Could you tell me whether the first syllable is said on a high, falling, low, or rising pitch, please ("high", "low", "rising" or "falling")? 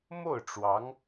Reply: falling